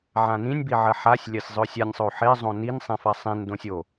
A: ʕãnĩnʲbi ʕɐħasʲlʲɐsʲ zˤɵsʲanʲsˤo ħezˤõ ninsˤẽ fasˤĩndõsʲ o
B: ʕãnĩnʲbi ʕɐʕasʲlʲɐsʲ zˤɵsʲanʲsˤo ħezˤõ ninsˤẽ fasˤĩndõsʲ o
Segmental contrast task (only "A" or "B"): A